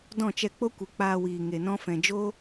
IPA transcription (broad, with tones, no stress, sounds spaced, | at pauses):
d ɔ̃˦˨ t͡ʃ ɛ˧ k͡p o˦ kʷ ɨ˨ k͡p aː˧ w iː˨ ŋ e˨ n ɔ̃˧ f ɛ̃˨ d͡ʒ o˦